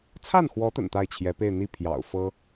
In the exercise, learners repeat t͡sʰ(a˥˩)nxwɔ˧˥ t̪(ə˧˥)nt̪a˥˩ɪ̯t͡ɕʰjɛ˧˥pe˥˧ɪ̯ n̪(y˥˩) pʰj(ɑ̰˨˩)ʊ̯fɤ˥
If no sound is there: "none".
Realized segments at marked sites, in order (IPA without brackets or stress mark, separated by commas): a˥˩, ə̰˨˩, i˥˩, ɑ̰˨˩